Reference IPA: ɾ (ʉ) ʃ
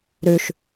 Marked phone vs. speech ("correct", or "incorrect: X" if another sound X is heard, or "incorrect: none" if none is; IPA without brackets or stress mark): correct